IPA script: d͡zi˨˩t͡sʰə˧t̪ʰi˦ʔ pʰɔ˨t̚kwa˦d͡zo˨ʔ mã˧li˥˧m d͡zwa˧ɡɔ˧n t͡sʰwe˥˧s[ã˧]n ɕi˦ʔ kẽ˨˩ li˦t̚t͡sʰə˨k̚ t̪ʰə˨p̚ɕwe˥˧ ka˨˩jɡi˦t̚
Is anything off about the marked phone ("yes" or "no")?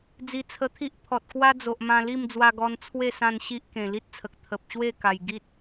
no